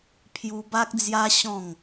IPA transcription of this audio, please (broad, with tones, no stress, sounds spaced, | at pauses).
pʰ j u˧ b a˦ k̚ d͡z j a˦ ɕ ɔ̃˥˧ ŋ